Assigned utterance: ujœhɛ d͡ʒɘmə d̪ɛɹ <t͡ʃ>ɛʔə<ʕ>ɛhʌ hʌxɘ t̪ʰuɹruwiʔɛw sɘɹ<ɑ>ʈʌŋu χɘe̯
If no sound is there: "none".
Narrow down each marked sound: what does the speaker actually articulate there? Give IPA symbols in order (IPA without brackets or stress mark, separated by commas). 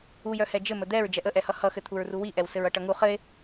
d͡ʒ, ʔ, ʌ